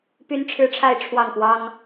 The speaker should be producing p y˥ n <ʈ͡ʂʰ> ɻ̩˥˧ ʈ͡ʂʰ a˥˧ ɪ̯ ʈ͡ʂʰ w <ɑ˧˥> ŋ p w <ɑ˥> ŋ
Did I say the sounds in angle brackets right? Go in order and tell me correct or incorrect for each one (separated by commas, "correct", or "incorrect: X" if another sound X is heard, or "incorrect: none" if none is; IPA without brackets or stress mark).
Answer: correct, incorrect: ɑ˥˩, correct